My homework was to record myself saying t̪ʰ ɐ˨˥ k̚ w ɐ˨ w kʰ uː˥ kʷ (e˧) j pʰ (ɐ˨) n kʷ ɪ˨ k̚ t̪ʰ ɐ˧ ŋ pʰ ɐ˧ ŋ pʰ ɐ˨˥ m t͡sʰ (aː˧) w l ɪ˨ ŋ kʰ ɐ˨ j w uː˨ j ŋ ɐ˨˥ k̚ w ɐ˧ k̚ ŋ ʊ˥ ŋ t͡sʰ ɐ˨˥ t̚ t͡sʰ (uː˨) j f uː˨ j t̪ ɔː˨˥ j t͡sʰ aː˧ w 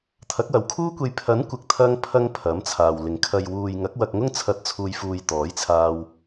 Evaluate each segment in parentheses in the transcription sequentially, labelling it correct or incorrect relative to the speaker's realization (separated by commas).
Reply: correct, incorrect, incorrect, correct